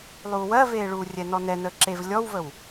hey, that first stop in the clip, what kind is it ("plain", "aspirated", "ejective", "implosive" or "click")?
click